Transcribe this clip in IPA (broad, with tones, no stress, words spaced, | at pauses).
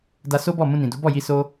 da˧so˦bɔ˦˨ mũ˧nĩ˨du˨˦ bɔ˦˨ji˧ so˦